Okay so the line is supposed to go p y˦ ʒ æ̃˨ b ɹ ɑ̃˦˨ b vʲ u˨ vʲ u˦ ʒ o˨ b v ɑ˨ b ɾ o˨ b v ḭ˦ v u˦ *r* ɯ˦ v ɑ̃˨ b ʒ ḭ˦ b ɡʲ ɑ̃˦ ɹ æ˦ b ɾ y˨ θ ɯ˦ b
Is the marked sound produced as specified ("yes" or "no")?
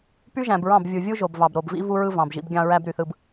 no